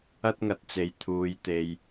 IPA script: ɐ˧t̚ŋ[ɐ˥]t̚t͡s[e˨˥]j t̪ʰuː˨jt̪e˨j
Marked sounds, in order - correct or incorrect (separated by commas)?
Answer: incorrect, incorrect